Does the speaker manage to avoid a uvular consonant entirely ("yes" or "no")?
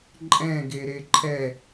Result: yes